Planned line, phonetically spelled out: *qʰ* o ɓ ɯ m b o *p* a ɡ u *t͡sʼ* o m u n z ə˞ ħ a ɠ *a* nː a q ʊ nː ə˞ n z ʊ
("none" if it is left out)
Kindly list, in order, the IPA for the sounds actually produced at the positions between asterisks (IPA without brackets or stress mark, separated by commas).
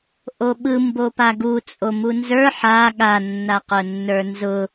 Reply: ʔ, p, t͡sʼ, a